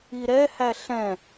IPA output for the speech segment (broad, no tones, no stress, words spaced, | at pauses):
iɾɛ hæɬɛ̃